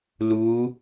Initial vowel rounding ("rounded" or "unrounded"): rounded